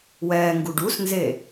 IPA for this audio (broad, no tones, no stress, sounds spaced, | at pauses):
w ɛː ŋ ɡ u ɖ u s n z e